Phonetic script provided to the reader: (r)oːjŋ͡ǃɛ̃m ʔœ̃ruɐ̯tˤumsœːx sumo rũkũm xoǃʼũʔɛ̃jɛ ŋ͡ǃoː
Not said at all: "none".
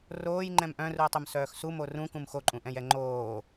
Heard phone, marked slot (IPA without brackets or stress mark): r